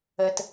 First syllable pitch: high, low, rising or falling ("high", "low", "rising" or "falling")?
low